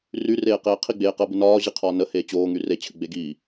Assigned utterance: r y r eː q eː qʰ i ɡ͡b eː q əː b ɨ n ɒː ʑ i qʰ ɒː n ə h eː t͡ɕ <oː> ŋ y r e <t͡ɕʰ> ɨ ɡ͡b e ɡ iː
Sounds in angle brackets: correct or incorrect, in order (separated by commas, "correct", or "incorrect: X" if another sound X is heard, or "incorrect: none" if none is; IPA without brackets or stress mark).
correct, correct